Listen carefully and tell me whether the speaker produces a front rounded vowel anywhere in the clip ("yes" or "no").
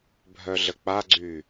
yes